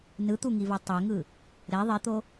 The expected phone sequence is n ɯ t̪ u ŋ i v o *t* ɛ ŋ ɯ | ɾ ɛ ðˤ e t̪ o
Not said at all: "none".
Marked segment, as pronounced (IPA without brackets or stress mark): tˤ